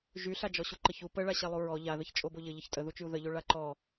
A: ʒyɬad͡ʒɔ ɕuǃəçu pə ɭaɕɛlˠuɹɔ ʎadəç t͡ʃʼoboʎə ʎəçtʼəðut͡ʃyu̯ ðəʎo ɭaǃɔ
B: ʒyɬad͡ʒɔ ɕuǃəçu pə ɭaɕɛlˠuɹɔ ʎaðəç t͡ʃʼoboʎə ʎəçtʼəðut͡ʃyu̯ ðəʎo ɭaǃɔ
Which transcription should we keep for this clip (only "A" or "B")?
B